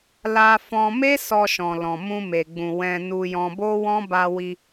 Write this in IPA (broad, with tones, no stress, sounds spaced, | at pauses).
l a˧ f ɔ̃˧ m e˦ s ɔ˧ ʃ ɔ̃˨ l ɔ̃˨ m ũ˧ m e˨ ɡ͡b ũ˨ w ɛ̃˧ n u˧ j ɔ̃˧ b o˦ w ɔ̃˦ b a˧ w i˧